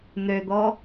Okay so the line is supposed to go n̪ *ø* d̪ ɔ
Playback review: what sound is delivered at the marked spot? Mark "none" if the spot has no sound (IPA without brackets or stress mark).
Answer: ø